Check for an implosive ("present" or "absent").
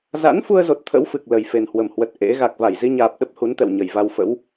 present